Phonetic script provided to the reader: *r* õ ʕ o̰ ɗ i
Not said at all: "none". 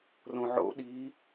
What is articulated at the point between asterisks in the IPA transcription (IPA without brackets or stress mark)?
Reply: r